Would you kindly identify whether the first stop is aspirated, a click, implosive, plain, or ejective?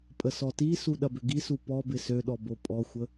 ejective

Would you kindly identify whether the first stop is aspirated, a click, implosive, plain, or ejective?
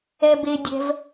plain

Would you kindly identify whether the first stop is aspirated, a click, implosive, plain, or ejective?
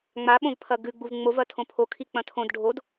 implosive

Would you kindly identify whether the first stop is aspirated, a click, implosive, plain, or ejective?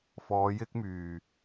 plain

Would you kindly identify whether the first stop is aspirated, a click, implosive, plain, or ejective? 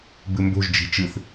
plain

